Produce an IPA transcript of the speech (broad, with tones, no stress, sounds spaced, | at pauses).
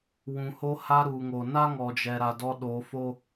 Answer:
w ũ˨ h o˧ h a˧ ɾ u˨ ŋ o˨ n a˦ ŋ ɔ˨ d͡ʒ ɛ˨ ɾ a˨ d ɔ˧ ɗ oː˨˦ f o˦